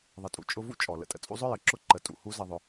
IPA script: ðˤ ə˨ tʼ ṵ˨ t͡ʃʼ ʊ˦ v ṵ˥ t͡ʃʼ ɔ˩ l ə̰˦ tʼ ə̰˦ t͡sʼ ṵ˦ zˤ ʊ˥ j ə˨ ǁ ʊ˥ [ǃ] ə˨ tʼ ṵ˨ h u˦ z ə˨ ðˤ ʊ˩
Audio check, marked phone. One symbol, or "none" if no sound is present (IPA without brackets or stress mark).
ǃ